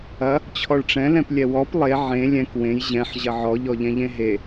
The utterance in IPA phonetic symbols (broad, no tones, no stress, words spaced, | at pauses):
ɐ | t͡ɕʰɔɭʈ͡ʂɛ̃lɛ̃p lʲɛwɔp lˠe ʕẽ lʲɛ̃k wẽj ʑɛ̃ħ ʑɐʕɔʎɔʎɛ̃ ʎẽɦe